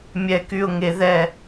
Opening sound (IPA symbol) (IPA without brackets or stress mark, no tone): mʲ